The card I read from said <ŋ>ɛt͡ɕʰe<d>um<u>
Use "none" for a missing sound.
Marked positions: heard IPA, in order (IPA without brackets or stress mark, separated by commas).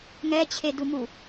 ŋ, d, u